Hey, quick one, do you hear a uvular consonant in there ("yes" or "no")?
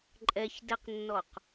yes